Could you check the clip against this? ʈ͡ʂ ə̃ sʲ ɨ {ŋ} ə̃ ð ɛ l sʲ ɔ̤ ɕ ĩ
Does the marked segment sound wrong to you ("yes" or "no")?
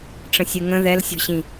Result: no